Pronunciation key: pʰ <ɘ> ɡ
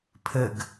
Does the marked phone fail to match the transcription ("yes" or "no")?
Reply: no